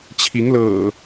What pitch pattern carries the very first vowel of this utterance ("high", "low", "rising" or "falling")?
rising